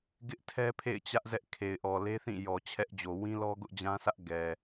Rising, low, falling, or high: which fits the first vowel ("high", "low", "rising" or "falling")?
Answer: high